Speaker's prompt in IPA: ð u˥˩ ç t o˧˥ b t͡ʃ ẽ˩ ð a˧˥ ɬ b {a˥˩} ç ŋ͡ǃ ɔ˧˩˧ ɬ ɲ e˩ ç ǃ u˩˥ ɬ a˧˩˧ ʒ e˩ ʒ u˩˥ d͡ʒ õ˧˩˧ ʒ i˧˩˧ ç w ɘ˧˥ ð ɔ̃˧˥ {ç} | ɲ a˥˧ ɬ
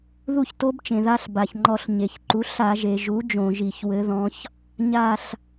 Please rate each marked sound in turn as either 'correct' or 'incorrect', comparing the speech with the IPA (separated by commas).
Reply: incorrect, correct